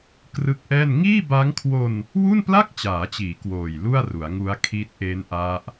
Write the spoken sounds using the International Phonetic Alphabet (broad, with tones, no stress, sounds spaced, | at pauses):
k r ɯ˦˥ k̚ ʔ ɛː˥˩ n ŋ iː˥˩ b a˦˥ ŋ kʰ w o˧ n | w u˥˩ n p l a˥˩ k̚ t͡ɕ aː˩˦ t͡ɕ iː˩˦ k w oː˨˩ j l u˥˩ a̯ r u˩˦ a̯ ŋ u˦˥ a̯ kʰ i˦˥ t̚ ʔ e˦˥ n ʔ a˦˥ ʔ